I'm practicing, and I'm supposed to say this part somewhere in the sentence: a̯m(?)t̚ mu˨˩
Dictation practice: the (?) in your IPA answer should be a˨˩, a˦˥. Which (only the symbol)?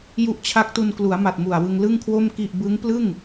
a˨˩